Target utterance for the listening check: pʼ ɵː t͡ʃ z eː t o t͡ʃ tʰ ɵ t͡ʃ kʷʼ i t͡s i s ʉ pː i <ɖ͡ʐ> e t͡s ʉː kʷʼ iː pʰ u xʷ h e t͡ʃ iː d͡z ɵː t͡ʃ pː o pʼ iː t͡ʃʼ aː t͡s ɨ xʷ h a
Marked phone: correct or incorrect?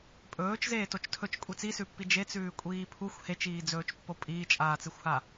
incorrect: d͡ʒ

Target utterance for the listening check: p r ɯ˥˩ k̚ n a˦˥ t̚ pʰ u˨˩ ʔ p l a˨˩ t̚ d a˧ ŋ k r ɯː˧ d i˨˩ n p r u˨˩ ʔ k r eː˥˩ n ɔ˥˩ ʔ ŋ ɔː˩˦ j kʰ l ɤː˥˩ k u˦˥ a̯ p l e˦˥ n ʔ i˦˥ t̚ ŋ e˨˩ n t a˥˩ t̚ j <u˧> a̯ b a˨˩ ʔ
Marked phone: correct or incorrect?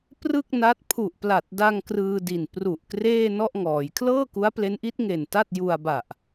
correct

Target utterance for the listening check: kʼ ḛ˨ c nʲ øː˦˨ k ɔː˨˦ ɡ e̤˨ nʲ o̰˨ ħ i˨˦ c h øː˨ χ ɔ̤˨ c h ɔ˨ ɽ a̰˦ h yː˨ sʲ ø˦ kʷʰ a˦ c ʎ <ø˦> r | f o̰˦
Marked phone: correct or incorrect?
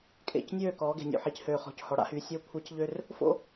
correct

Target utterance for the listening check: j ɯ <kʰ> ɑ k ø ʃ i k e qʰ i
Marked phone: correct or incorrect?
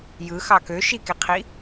incorrect: x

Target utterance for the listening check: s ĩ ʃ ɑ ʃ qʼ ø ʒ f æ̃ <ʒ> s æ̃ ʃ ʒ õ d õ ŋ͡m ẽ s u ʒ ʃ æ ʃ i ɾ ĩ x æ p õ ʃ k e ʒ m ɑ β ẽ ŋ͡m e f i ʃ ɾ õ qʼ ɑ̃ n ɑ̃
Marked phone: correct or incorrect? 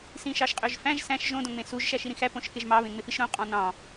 correct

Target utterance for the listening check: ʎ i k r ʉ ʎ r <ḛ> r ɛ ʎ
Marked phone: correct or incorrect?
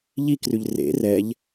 correct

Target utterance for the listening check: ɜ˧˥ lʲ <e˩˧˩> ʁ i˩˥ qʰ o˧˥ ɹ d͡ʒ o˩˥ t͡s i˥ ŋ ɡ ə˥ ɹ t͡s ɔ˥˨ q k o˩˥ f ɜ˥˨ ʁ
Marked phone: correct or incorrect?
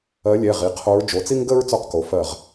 incorrect: ɛ˩˧˩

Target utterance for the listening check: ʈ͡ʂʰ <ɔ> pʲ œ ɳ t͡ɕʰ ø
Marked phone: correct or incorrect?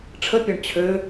incorrect: ə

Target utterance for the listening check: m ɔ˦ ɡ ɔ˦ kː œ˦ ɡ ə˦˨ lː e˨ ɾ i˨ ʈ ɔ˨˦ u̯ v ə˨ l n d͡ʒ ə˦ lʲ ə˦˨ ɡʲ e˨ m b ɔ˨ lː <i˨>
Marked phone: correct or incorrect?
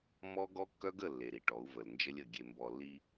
incorrect: i˦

